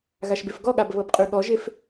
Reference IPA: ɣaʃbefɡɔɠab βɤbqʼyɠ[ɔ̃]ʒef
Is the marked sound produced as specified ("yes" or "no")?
no